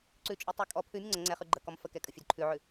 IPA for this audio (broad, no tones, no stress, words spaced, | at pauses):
ǀʉt͡ʃʼʉtˤʉ kʼɔ pʰʉmʲə ŋ͡ǀə ŋ͡ǀɛχʉ ɡ͡ǃəkɔm fəkɛkʼəfʲʉd ǃʰʉʕʉ